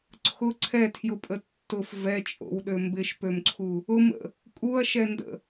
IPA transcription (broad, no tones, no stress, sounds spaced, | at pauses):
ǀʰ ʊ ǀʰ ɛ tʰ j ʊ pʼ ə tː ʊ f v ɛ t͡ʃʼ o̰ w ɗ ø m b ɪ ʃ p ø m ǀʰ u | ʊ m ə̰ | kʼ u ɐ̯ ʃ ɛ n d ə̰